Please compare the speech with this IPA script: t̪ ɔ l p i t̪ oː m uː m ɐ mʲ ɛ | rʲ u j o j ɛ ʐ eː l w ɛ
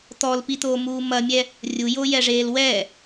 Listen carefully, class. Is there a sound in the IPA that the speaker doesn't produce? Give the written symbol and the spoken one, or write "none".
none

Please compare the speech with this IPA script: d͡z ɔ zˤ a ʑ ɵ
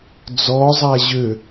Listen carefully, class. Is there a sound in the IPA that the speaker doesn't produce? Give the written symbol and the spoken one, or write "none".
ɵ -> ø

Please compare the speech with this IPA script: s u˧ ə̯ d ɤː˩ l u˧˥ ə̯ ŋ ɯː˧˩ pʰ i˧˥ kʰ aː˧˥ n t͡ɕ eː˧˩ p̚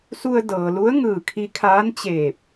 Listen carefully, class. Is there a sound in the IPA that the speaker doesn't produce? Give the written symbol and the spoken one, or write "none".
pʰ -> kʰ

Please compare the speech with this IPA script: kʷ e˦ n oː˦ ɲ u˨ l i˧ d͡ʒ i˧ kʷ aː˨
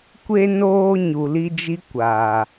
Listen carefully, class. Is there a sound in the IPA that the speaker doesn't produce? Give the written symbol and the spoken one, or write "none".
none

